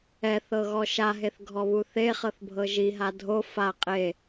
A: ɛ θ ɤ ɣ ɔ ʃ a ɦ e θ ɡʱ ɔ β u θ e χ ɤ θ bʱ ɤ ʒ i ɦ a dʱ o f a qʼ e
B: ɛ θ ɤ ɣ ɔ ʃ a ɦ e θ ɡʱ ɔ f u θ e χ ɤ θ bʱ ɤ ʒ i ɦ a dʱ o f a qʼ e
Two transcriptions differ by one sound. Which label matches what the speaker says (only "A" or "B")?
A